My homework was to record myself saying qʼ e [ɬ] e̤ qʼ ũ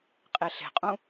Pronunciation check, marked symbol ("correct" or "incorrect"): correct